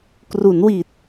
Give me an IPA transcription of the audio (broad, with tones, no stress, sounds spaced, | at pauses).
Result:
k r u˩˦ n w i˨˩ t̚